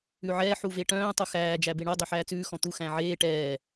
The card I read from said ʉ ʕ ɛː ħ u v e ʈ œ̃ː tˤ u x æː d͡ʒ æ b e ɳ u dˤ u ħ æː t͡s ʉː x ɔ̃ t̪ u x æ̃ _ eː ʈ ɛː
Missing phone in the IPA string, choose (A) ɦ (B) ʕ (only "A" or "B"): B